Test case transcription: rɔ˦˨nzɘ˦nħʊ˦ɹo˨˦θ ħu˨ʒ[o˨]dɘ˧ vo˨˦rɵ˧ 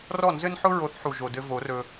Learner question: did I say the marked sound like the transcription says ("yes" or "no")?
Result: yes